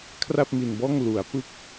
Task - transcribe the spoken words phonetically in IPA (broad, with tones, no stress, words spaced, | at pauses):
kʰra˥˩p̚mi˧nbɔː˥˩ŋ lu˩˦a̯ pɯ˦˥k̚